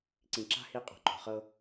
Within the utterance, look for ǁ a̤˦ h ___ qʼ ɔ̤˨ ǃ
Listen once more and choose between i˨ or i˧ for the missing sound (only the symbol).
i˧